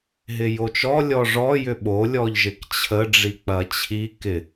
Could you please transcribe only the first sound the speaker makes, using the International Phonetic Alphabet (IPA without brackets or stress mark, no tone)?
ɦ